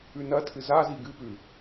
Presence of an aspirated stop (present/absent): present